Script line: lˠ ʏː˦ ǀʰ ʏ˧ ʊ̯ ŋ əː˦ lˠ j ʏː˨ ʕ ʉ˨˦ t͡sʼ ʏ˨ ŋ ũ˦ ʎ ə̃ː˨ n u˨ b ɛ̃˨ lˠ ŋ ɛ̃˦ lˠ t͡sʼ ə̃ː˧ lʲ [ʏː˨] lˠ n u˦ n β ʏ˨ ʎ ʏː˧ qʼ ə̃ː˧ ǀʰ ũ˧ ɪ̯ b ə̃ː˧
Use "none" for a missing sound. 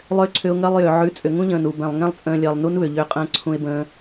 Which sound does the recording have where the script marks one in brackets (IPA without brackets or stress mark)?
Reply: əː˨